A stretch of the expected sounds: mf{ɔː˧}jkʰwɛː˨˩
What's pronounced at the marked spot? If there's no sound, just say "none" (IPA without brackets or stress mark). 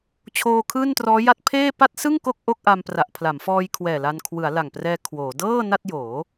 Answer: ɔː˧